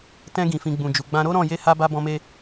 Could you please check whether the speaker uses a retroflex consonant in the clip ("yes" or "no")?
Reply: no